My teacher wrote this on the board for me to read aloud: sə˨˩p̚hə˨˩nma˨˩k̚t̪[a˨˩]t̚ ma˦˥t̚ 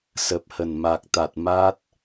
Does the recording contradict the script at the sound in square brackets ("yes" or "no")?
no